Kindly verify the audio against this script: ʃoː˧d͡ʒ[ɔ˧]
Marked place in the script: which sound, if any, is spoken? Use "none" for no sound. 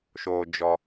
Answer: ɔ˧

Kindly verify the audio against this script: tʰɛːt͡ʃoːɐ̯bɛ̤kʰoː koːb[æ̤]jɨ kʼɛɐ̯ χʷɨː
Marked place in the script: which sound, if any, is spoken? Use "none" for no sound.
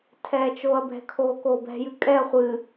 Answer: ɛ̤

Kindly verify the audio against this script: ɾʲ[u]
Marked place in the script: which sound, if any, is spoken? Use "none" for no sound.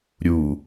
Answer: u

